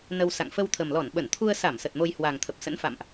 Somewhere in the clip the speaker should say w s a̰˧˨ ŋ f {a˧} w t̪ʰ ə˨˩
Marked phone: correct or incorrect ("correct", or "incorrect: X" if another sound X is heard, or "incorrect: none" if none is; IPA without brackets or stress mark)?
incorrect: ə˧